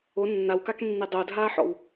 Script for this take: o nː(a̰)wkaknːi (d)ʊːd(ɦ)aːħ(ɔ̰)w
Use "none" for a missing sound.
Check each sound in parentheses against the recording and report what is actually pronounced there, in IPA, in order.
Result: a, dˤ, ɦ, ɔ̰

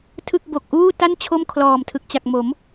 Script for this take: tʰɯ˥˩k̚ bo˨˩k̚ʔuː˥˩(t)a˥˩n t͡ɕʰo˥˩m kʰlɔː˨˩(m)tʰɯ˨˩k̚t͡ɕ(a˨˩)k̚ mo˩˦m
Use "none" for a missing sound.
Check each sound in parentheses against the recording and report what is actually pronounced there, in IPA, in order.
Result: t, m, a˨˩

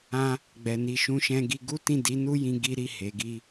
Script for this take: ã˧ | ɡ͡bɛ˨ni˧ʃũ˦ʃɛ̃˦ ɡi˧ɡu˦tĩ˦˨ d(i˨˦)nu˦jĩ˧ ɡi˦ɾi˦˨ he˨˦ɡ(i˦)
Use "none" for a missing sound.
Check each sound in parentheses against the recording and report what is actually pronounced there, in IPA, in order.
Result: i˨˦, i˦

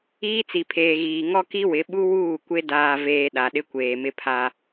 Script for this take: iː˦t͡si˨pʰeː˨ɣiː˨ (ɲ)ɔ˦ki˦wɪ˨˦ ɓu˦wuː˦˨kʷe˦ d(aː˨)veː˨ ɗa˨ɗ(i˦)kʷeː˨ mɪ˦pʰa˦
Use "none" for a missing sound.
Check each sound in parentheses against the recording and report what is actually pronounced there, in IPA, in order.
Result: ŋ, aː˨, ɪ˦

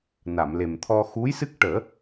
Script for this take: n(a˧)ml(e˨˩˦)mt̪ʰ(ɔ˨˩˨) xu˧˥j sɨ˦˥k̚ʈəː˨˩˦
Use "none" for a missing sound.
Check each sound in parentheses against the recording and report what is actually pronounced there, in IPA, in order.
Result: a˨˩˨, e˨˩, ɔ˧

